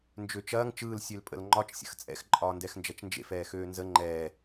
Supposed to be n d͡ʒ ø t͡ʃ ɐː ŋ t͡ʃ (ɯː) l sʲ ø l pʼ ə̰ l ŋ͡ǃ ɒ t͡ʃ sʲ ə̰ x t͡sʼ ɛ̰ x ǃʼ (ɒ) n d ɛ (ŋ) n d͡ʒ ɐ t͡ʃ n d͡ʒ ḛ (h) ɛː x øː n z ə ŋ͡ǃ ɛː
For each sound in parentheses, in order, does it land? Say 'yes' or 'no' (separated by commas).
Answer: yes, no, no, no